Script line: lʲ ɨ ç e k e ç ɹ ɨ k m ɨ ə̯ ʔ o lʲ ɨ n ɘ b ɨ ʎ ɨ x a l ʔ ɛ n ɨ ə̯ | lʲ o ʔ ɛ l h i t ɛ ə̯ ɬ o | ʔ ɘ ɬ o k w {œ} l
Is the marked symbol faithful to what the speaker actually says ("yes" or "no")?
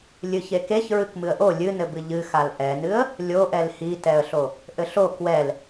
no